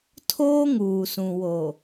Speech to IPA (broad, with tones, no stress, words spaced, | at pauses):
tʰoː˦ŋuː˨sũ˨ wo˨